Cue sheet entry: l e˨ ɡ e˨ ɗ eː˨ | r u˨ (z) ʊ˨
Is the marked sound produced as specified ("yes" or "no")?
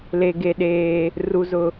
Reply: yes